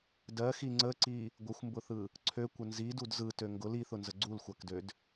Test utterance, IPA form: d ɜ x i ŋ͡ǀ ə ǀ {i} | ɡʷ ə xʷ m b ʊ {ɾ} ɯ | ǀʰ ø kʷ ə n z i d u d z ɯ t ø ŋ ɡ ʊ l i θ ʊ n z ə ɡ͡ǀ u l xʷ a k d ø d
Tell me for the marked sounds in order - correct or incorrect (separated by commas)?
correct, incorrect